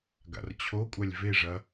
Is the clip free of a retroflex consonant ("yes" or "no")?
no